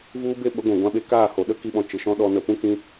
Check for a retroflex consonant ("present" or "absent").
absent